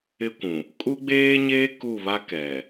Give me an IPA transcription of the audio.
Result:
ɪ˦ kʷ ũ˨ | kʼ u˦ ɡ͡b eː˦ ɲ eː˦ k u˦˨ β a˦ k ɛ˨

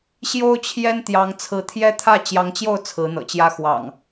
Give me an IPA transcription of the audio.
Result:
ɕ j o˦ ʊ̯ t͡ɕʰ j ɛ˦ n t̪ j ɑ˨˦ ŋ t͡sʰ ɹ̩˨˦ t̪ʰ j ɛ˦ t̪ʰ ä˥˨ t͡ɕ j ɑ˨˦ ŋ t͡ɕ j o˥˨ ʊ̯ t͡sʰ ɹ̩˨˦ n̪ ɤ̰˨˩ t͡ɕ j ä˦ x w ɑ̰˨˩ ŋ

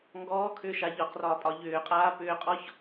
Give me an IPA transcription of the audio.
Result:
ŋ ɡ ɔː kʰ ʏː ʃ a ʎ ɒ q r ɒː pʼ ɒ ʎ ʏː qʼ aː p ʏː qʼ ɔ ç

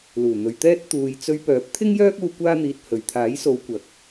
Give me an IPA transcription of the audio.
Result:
l uː˨˩ n̪ ɵ˨ ɥ t̪ ɛː˥ t̚ t̪ uː˧ j t͡s ɵ˧ ɥ p œː˨˥ p̚ t̪ʰ ɪ˥ ŋ j œː˥ k̚ uː˧ kʷ aː˥ n̪ iː˧ t̚ h ɵ˨ ɥ t̪ʰ aː˨˥ j s o˨˧ w kʷ ɐ˨ k̚

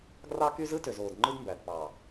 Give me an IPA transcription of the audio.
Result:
ɡ r ɑ˦ k y˦ z ɯ˦ t ø˨ z oː˨ d ŋ͡ǃ ɯ˦ d m b æ˨ d p ɑ˨

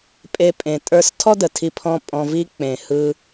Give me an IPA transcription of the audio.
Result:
pʼ e˦ pʼ ẽ˧ tʼ ə˞˦ s tʰ ɔ˦ d ə˨ tʰ i˧ pʰ ɔ̃˧ pʼ ɔ̃˧ v i˦ k͡p ẽ˨ h ɯ˧

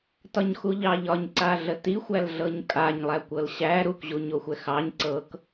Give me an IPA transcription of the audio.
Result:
t ɒ ɲ x u ʎ ɑ ʎ ɒ ɲ ǀ a ɮ ə t i xʷ æ l ɮ ɤ ɲ kʼ a ɲ lˠ æ kʷ ɤ l ɕ æ ɾ u k ʑ u ɲ o xʷ ɛ x ɑ ɲ ǀ ɤ k

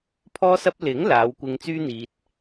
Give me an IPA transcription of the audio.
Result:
pʰ ɔː˥ s ɐ˥ p̚ l ɪ˨˥ ŋ l aː˨˧ w kʷ ɪ˧ ŋ t͡s yː˥ n̪ iː˧ t̚

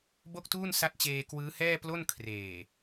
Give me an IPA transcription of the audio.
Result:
b o˥˩ k̚ t uː˥˩ n s a˦˥ t̚ t͡ɕ eː˧ k w ɯː˦˥ h ɛː˥˩ p l o˥˩ n kʰ r eː˨˩

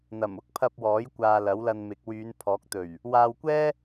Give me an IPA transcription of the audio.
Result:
n̪ ɐ˨˩ m ʊ˥ k̚ pʰ ɐ˧ p̚ w ɔː˨˥ j kʷ aː˨ l ɐ˨˥ w l ɐ˧ n m ɪ˨˥ k̚ w yː˨˧ n pʰ ɔː˨˥ k̚ t̪ ɵ˨˩ ɥ | w aː˧ w kʷ ɛː˥

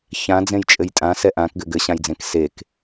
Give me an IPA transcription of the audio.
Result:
ç ã d͡z ẽ j t͡ʃʼ ɘ j tʼ ã s ɛ ʔ ã k ɡ ɘ ɡ ɘ ɕ ã j d͡z ẽ k s e k

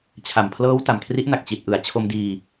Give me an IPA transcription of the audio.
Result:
t͡ɕʰ a˨˩ m pʰ l ɤː˦˥ w t a˨˩ m kʰ r i˦˥ ʔ n a˨˩ k̚ t͡ɕ i˨˩ t̚ ʔ ɯ˩˦ a̯ t͡ɕʰ o˧ m d iː˧

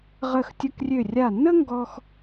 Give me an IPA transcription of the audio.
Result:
ʁ ə˧˩ x tʲ ə˧ k rʲ ø˧˩ rʲ a˧˩ nː ə˥ ŋ ɡ ɔ˧ x

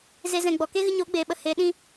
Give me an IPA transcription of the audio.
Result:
z e˦ z ɛ̃˧ ɡ͡b ɔ˨ k e˦ ɣ ɨ˧ ɲ oː˨˦ ɡ͡b eː˨ ɓ ə˨ h eː˨˦ ɗ ĩ˧

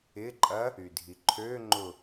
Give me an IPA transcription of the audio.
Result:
ɪ ǃʼ ɐ | y dʱ i ǃʰ ø ŋ͡ǃ ʊ

